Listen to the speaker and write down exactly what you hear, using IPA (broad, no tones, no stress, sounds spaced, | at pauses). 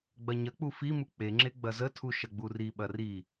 ɡ͡b ɐ ɲ ɐ k͡p u f i m u k͡p e ŋ͡ǁ e ɡ͡b ɐ z ə tʰ u ʃ ɐ ɡ͡b u r i ɓ ɐ r i